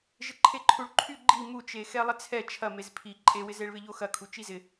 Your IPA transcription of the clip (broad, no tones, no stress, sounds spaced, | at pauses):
ʒ ɪ ǃʰ e ǃʰ u ɭ ǃʰ y ɡ͡ǃ i m u t͡ʃ e x ɛ lˠ ɪ t͡sʰ ɛ t͡ʃʰ ɐ m e z pʰ i ǃʼ e w ɪ z e ɭ β ɪ ʎ o x ɐ kʰ u t͡ʃ i z ɪ